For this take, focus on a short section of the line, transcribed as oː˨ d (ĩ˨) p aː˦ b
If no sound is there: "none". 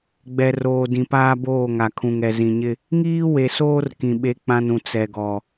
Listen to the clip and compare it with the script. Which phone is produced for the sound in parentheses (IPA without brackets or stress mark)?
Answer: ĩ˨